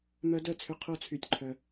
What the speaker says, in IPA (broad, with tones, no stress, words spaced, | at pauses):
mœ˦˥dœ˥˩t͡sʰʏ˦˥ qʰo˦˥t͡sʰy˧tʲǃʰœ˧